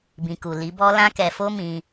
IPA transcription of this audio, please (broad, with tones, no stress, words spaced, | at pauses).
bĩ˨ku˨ li˨˦bɔ˦ lã˦kɛ˧fo˦ mĩ˧